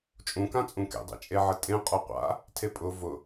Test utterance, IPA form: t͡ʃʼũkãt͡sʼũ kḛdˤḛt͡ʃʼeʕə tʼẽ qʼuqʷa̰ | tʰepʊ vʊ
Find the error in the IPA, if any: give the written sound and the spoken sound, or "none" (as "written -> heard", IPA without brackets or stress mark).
p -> pʼ